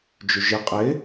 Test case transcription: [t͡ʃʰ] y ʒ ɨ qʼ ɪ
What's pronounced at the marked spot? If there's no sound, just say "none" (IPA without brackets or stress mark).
d͡ʒ